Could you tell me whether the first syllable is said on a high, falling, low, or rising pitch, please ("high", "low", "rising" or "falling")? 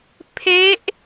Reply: rising